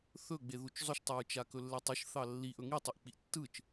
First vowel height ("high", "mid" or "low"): mid